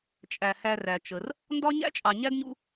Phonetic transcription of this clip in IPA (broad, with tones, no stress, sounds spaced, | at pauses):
t͡ʃʼ æ˩ h æ˨ r æ˩ t͡ʃ ə˩ r | n d ɒ˥ ɲ æ̰˥ t͡ʃʼ ɑ˨ ɲ æ˥ d ɲ ṵ˦